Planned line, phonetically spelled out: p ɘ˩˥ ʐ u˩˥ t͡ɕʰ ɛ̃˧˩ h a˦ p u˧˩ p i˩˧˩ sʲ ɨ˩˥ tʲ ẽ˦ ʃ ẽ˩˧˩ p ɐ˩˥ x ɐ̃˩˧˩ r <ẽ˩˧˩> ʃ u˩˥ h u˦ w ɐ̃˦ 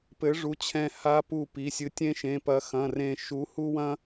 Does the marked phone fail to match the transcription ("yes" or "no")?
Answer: yes